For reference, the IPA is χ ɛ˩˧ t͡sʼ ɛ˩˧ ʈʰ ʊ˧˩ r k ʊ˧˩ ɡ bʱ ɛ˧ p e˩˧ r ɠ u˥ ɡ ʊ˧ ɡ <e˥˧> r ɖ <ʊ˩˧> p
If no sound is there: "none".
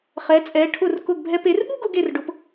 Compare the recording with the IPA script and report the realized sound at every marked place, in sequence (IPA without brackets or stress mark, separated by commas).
e˧˩, ʊ˩˧